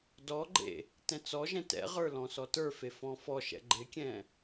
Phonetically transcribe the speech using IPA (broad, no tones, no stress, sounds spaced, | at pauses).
d ɔ ɡ͡ǃ ḛ | t ɛ̃ t͡s ɔ ʒ ɛ̃ t ɛ̰ ʁ ə˞ l ɔ̃ s ɔ t ə˞ f e f ɔ̃ f ɔ ʃ ɛ̰ ɡ͡ǃ ɪ kʲ ɛ̃